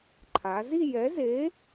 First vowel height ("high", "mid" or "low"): low